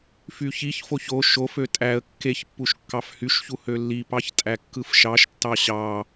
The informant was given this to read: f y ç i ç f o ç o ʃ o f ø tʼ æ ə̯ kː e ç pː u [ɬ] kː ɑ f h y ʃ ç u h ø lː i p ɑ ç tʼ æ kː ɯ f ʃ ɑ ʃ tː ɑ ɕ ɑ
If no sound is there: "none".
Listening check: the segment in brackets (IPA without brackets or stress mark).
ʃ